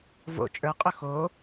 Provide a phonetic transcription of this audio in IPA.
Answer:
v o̰ t͡ʃʼ ə˞ qʼ ɵ x o

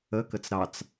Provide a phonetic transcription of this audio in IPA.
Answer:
ə k ə t͡s ɾ ɑ t͡s

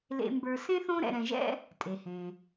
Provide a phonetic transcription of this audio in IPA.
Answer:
l ḛ˨ m b ə˞˨ s ẽ˥ θ õ˦ ɾ ɛ̰˨ ɾ ɛ̃˨ ʒ ɛ̰˦ | tʼ e˩ h ẽ˩

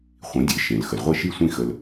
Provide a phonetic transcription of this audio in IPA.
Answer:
χʷ ĩ˩˥ dʲ e˩˥ ʃ ẽ˩ l x ə˩ l ʁʷ e˥˩ ʃ i˥˩ sʷ ĩ˥˩ x ə˧ l

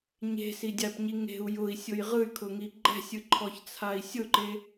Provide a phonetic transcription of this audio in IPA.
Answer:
ɲ e̤ s i dʲ a p ɲ i ŋ e̤ u̯ j ʊ i̯ sʲ ʊ j ʁ ɯ y̯ kʰ ʊ ŋ i ɡ͡ǃ ɛ̤ sʲ ɯ ǃʰ ɔ ç t͡sʰ a i̯ sʲ ʊ ǃ e

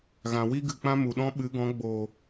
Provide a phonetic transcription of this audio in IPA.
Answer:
ɣ ã˨ w i˦ ɡ ɨ˨ k͡p ã˦ m u˨ ɗ ɔ̃˦ ɓ ɨ˨˦ ɡ ɔ̃˨˦ ɡ͡b oː˨

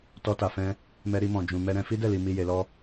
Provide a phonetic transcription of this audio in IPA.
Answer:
t ɔ˧ t a˨ f ɛ̃˧ | m ɛ˧ ɾ i˧ m ɔ̃˨ d͡ʒ ũ˨ m ɛ˧ ɾ ɛ̃˧ f i˦ d ɛ˦˨ l i˨ m i˨ j e˨ l ɔ˧

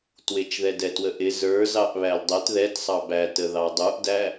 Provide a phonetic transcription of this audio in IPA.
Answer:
t w ɪ t͡ʃ ð ɛ d ɛ t w ə ʔ ɪ z ə˞ z ɑ ʔ β æ l dˤ ɛ t ð ɛ t sˤ ɑ b æ t ə ð ɑ dˤ u ʔ d æ

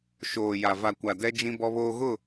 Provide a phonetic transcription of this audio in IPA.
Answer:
ʃ oː˨ j a˨ v a˨ kʷ a˨ d ɛ˦ d͡ʒ ĩ˦ b ɔ˦ β oː˦ ɣ ʊ˦˨

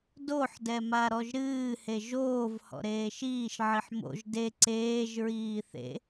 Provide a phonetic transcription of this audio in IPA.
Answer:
d o ħ d ɛ m a ɾ ɔ ʒ ɾ ɨː h e ʒ oː v h ɔ̰ ɾ eː ʃ iː ʃ ʕ i ħ m o̰ ʒ d e ǀ eː ʒ ɹ iː θ ḛ

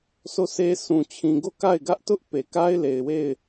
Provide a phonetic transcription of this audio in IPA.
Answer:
sʰ o˦˨ sʰ e˦ sʰ ũ˨ t͡ɕʰ ĩ˨ ɡ o˦˨ k a˦˨ ɪ̯ ɡ ä˦ ʔ t ʊ˦ ʔ p e˨ k a˦ ɪ̯ l e˨ ɪ̯ w e˦˨ ɪ̯

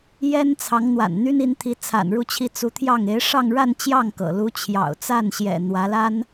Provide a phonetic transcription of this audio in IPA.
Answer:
j ɛ˥ n t͡sʰ ɑ˧˥ ŋ n̪ w a̰˨˩ n n̪ y˥ n i˧˥ n t̪ʰ i˧˥ t͡sʰ a̰˨˩ n ɻ u˥˧ t͡ɕʰ i˥˩ t͡s u˧˥ t̪ʰ j ɑ˥˩ ŋ e˧˥ ɪ̯ ʂ ɑ˥˧ ŋ ɻ a˥˧ n t͡ɕ j ɑ˥˩ ŋ k ɤ̰˨˩ l u˧˥ t͡ɕʰ j ɑ̰˨˩ ʊ̯ t͡s a˥˩ n ɕ j ɛ̰˨˩ n̪ w ä˧˥ l a˥ n

